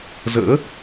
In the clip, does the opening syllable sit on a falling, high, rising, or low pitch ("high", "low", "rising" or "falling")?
rising